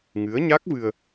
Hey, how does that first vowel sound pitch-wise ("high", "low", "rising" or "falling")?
rising